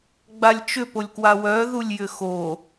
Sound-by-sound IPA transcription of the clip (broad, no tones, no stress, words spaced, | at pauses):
ɡ͡balʲt͡ʃʏ polʲkwawœ ðulʲjʏxo